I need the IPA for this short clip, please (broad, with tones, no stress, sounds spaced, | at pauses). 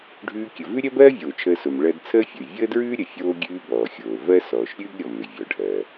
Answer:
ɖʱ ʉː˧ kʲ ə˩ v ʉ˥ ɾʲ ɜ˥ b ɜː˥ vʲ oː˩ t͡ʃʰ əː˧ s o˩ m ɭ ɜ˧ d t͡sʰ əː˥ fʲ ə˩ y̯ vʲ əː˥ d ɹ ʉː˥ ɾʲ ə˩ fʲ oː˧ ɡʲ ʉː˧ b ɔː˩ xʲ oː˩ v ɜ˥ s ɔː˩ ʃ ɾʲ ʉː˥ ɡ ɾʲ ɔ˩ m ʏ˩ vʲ ɔ˩ ɖʱ ɜː˩